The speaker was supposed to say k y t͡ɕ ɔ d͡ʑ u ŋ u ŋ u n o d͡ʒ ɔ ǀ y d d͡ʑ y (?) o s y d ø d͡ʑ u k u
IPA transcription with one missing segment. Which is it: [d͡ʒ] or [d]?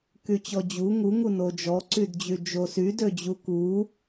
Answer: d͡ʒ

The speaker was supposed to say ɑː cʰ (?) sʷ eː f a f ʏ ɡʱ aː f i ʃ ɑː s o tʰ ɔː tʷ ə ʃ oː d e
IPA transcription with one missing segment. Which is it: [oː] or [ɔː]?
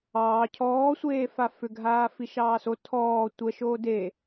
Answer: ɔː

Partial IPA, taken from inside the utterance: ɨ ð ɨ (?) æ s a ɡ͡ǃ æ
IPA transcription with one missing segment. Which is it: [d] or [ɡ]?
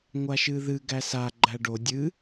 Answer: ɡ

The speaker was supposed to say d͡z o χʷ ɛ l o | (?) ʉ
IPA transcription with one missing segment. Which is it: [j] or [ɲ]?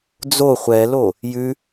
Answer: j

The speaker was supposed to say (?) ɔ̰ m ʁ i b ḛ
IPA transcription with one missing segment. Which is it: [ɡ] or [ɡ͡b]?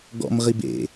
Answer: ɡ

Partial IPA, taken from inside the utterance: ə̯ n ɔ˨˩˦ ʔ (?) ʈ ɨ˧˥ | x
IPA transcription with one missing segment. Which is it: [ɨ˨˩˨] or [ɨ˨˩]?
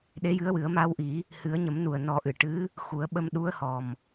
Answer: ɨ˨˩˨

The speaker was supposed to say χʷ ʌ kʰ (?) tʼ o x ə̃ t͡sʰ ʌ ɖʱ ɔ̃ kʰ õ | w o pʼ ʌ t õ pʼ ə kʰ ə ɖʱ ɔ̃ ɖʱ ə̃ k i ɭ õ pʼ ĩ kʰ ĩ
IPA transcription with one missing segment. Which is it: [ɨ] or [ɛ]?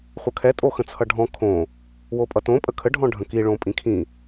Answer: ɛ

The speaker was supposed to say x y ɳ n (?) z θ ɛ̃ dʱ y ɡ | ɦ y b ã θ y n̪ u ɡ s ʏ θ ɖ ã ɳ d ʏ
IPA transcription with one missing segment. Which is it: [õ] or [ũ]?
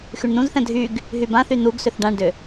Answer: ũ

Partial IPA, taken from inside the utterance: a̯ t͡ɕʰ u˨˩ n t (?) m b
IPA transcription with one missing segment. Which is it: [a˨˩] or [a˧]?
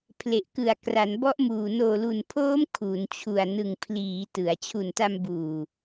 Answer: a˧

